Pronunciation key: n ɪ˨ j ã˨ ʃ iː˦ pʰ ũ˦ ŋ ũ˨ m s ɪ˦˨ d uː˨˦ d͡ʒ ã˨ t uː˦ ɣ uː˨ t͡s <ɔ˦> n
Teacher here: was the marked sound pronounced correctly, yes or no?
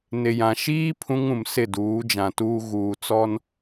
yes